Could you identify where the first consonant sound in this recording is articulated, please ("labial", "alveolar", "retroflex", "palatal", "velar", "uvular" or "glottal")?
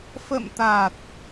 labial